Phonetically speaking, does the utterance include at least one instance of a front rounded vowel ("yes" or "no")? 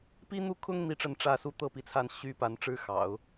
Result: yes